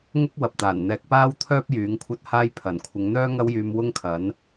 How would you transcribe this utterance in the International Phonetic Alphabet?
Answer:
ŋʊ˥k̚wɐ˨p̚t̪aː˨˩nn̪ɛː˧k̚ paː˥wt̪ʰœː˥p̚ jyː˨˥ŋkʷʰɐ˥t̚haː˥j pʰɐ˨˩n kʷʰɪ˨˧ŋn̪œː˥ ŋɐ˥wjyː˧mwʊ˥ŋkʰɐ˨˥n

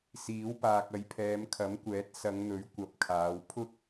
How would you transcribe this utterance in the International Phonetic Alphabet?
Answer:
siː˨˥wpaː˨k̚ ɐ˨˧jpʰɛː˨˧m kʰɐ˨˥mkʷɛː˨˥t̚ sɐ˨˧ŋn̪ɵ˨˥ɥ kʷɐ˨˥p̚kʰaː˨˧wpʰʊ˥k̚

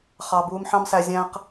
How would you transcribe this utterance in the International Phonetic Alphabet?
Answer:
χɑ˧ buː˧mħɑ̃˦msæ˧ zʲæ̃˦q

